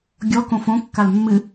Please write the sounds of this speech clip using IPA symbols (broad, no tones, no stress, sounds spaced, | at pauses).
ɡʲ ɔ k õ f õ kː a l mː ɨ